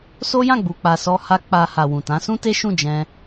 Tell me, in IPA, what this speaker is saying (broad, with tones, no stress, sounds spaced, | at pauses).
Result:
s o˦ j ã˦˨ ɡ͡b u˨ k͡p a˨ s ɔ˧ h a˧ k͡p a˧ h a˨ w ũ˨ t ã˨˦ s ũ˦ t e˦ ʃ ũ˦˨ d͡ʒ ɛ̃˧